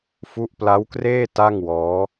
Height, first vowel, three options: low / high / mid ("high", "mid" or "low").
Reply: high